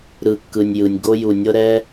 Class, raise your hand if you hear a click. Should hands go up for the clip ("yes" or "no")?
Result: no